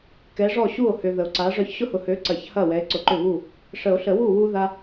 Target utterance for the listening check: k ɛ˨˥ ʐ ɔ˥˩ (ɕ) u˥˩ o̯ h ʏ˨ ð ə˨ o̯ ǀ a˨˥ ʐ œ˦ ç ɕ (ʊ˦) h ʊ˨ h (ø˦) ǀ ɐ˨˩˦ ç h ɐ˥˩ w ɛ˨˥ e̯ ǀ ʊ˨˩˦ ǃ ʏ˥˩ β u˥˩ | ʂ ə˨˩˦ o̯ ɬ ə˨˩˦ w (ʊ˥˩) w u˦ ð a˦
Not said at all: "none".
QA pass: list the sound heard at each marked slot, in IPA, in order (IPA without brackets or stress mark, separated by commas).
ɕ, ʊ˦, ø˨˥, u˥˩